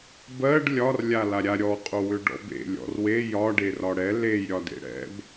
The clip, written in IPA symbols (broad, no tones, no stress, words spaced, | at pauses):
bɜɖ lʲɒr lʲalaɾʲa ɾʲɔ qʼowʏɖɔ̰bḛ lʲɔ̰rwe jɒ ɖerɒɽɛ lej ɾʲɒdḛɽɛ̰b